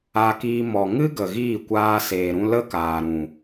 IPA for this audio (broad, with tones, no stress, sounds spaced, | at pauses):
a˧ k iː˧ m ɔ˨ ŋ ɨ˦ ɡ ə˨ ɣ iː˦˨ kʷ aː˧ s eː˨ ɾ ũ˧ l ə˦ k aː˨ ɾ ũ˨